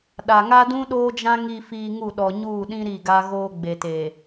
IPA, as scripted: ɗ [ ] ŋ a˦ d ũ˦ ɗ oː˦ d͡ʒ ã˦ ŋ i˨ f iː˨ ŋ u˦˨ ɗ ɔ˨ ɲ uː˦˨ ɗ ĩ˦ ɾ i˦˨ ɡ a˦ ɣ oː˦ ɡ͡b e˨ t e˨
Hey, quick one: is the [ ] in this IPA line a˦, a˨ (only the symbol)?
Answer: a˨